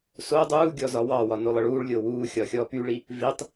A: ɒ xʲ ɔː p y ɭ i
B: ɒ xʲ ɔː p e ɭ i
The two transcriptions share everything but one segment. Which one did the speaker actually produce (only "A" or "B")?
A